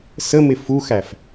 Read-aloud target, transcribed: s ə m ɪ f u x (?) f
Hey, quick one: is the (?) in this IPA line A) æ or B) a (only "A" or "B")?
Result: A